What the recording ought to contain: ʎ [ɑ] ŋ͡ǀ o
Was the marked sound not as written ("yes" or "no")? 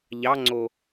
no